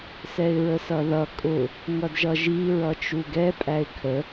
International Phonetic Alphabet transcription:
sɛɪ̯ɹəsʌðʌ kʼʊ | ŋʌdʒʌʒi ɹʌt͡ʃuɡɛ pʼæɪ̯kʰə

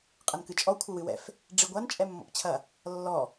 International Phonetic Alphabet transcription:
qʼɐnkɨt͡ʃʼɔ kʷʰɘwɨwɛ̰f | ɖ͡ʐiɡʷan t͡ʃʼɛmːɔ̰pt͡ɕʰɐ | lːɔ

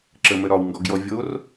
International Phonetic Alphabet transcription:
ǁəmə ɾɒwŋɡɔɡjɔ vʲor

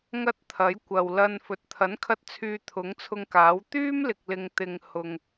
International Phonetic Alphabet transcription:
ŋɐ˥t̚t̪ʰɐ˨˥j kʷɐ˨wlɐ˧n fɵ˨t̚t̪ʰɐ˨˥nkʰɐ˧t̚ t͡sʰyː˧t̪ʰʊ˨˥ŋt͡sʰʊ˧ŋkaː˨˥w t̪yː˥mlɪ˨k̚lɪ˨ŋ t̪ɪ˨ŋ hʊ˨ŋ

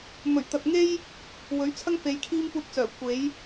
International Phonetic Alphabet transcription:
mɵ˨˩ɥt̪ɐ˨t̚ŋe˥j | wɵ˨˥ɥt͡sʰɐ˥ŋfe˨˧j kʰiː˥mpuː˧t̚t͡sœː˨˩ kʷe˨˥j

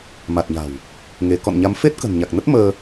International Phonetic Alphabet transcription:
ma˨˩t̚ɲa̤˨˩w | ŋe˨˦ kɔ̰˧˨nɲa˨˦m fe˦˥t̚kə̤˨˩nɲa˨˩k̚nə˦˥t̚ məː˧

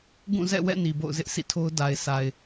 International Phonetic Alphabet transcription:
ɡũ˦˨zɛ̰˦˨wɛ̰˦˨ ni˨bo̰˦˨ʊ̯zɪ˦ʔ sʰḭ˦˨tʰo˦ʊ̯ da˨ɪ̯sʰa˨ɪ̯

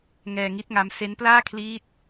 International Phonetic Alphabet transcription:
ŋɛː˧ŋi˦˥t̚ŋa˦˥m se˦˥nplaː˥˩kʰliː˦˥t̚

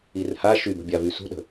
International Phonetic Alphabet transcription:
irha ʃybə̤bʲavy sṳɗə̤

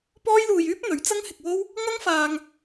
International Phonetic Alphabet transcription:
pɔː˥jluː˧jyː˥p̚n̪ɵ˨˥ɥ t͡sɐ˥ŋhɪ˧k̚wo˥w | ŋɐ˥ŋfaː˧ŋ

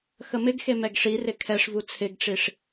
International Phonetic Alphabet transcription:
xəmɪɡxe mɛɡʂirɪ kʰɛʂvu t͡sʰɪɡʈ͡ʂiʂ

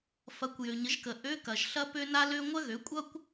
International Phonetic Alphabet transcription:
fɐ˩˥kʷ jø˩ɲə˩˥ʒkə˩ ʔø˧˥˧kɐ˩ʒ ɬɐ˥pø˥ na˥lø˥ ŋʷɐ˥ɣø˩˥kʷʼʌ˥kʷ

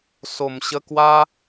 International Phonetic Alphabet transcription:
so˨˩mɕə˧kwa˦

